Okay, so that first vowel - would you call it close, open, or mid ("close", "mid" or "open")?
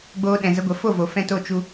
mid